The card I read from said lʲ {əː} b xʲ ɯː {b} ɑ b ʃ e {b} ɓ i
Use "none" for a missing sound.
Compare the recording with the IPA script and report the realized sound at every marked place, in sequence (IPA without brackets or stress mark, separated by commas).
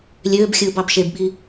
øː, b, b